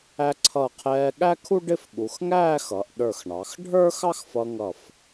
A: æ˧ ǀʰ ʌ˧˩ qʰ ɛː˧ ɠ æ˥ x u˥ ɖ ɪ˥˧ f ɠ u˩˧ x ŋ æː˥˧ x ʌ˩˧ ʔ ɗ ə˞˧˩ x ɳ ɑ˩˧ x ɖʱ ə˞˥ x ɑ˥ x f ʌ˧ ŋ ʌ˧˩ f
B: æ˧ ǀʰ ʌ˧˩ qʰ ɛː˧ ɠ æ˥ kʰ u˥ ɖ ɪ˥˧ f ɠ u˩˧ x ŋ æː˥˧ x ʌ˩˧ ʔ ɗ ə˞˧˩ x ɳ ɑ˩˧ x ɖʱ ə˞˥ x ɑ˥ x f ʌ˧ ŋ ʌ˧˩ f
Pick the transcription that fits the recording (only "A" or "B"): B